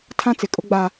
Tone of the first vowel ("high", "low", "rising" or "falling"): high